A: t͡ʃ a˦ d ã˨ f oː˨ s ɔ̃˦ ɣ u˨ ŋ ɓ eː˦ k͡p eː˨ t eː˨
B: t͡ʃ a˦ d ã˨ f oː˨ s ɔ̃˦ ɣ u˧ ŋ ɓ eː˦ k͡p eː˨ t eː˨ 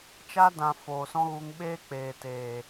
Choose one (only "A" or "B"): B